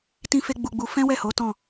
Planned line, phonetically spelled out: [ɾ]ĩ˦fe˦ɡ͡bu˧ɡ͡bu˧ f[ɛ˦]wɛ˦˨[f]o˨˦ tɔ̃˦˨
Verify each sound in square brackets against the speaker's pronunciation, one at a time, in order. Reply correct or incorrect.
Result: incorrect, incorrect, incorrect

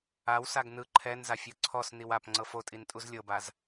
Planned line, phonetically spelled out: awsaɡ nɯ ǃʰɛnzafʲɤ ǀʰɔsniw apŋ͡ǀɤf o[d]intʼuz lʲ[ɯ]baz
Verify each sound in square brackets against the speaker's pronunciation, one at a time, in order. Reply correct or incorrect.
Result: incorrect, incorrect

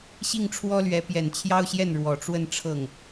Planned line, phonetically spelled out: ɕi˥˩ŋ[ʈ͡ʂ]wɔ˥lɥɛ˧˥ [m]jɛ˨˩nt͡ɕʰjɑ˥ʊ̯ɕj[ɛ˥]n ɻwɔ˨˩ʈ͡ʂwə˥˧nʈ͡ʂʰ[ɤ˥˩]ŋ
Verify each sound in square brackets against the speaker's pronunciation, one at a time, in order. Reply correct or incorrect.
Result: incorrect, incorrect, incorrect, correct

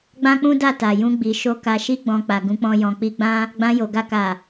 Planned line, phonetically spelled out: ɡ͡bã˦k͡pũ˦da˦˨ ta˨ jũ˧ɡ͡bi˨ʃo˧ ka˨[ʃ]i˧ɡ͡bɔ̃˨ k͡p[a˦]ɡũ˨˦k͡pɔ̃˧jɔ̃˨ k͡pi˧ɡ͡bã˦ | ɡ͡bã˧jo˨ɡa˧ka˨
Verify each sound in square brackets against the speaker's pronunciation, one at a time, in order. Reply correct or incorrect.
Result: correct, incorrect

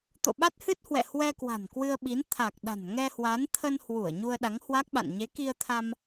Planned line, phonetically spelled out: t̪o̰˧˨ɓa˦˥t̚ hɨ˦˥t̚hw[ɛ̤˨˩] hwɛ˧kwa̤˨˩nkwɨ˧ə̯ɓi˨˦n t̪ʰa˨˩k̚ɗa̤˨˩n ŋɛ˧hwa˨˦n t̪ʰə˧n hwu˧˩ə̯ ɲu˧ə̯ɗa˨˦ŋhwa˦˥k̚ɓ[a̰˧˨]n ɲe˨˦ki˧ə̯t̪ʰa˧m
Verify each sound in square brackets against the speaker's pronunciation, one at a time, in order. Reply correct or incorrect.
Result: incorrect, correct

